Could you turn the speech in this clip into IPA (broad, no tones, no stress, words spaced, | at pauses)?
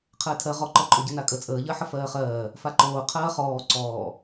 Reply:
qʰəːtʰɜ ʁɔǃɔǃʼoɟə nakʼə t͡sʼəːʎɜħə fɜːχɜː | faǃoː qʰɜːχɔː ǀɔː